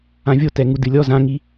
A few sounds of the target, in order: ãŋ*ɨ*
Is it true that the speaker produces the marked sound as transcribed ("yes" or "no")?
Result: no